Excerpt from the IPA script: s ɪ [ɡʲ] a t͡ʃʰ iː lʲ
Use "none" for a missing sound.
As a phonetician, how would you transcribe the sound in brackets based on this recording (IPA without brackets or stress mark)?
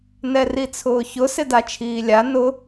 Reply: d